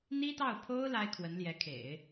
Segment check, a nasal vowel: absent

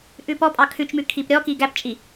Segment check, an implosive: absent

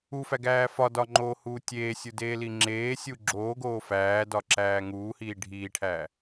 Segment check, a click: present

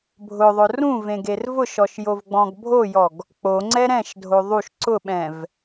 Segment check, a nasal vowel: present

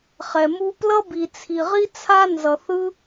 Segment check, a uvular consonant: present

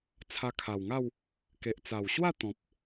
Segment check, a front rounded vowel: absent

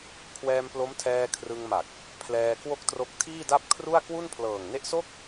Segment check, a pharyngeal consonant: absent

